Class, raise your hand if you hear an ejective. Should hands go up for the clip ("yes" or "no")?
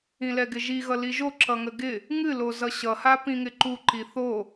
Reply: no